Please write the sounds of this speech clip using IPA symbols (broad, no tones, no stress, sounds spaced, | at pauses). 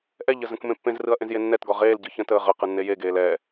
ʔ ɛ ʎ ə z ə̃ k m ẽ pː ẽ z r ɯ ɐ̯ ʔ ẽ z j e nː ɛ t ɡ ɒ ʁ eː l ɟ ɯ ç ə̃ t əː ʁ ə q ɯ nː e j e ɡ eː l ɛː